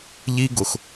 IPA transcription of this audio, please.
ʎ i˦ ɡ ʊ˨ x

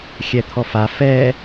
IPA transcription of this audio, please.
xʲ ɛ t̪ʰ ɔ f a f ɛ

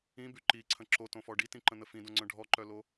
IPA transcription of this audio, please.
ĩ b y ǃ i ǀʰ ə̃ ǁ o t õ f ɔ ɖ i t ĩ ǃ ə̃ n̪ ə f ĩ d õ ŋ͡ǀ œ̃ ɖʱ ɔ ǃ œ l o

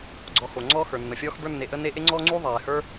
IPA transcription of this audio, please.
ɡ͡ǀ ɔ˨ x o˩ ŋ͡ǀ ɔ˦ x ə˞˩ nː ə˩ fʲ ɔː˦ x b ə˞˦ nː e˨ ʔ ə˦ n e˦ ʔ e˥ ŋ͡ǀ ɔː˥ ŋ͡ǀ uː˥ ðˤ ɛː˩ h ə˞˦

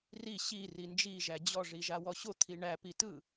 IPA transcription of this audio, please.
r i ɕ i r i n d͡ʒ i ʒ æ d͡ʑ ɔ ʐ i ʒ a w ɔ ɕ o t̪ʰ i ɳ æ p i t ɯ

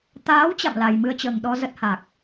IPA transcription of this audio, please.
t̪ aː˨˦ w t͡ɕ a̰˧˨ m l a˨˩ j m ɨ˧ ə̯ t͡ɕ əː˨˩ ŋ ɗ ɔ˧ z ə˦˥ t̚ h a˨˩ k̚

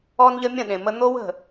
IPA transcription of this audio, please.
ɔ˦ n ʎ ə˦ mʲ ə̃˦˨ ɗ ẽ˨ m ə˦ n̪ o˦ w ə̤˦˨

